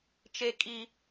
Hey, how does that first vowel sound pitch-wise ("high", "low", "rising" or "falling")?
high